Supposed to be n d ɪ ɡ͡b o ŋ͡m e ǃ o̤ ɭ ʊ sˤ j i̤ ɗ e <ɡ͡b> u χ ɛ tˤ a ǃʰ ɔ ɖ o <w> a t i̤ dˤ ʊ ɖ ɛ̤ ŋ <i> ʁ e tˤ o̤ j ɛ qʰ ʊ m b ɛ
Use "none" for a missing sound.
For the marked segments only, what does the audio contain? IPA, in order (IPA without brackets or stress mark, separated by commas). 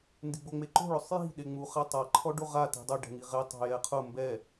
ŋ͡m, ʁ, i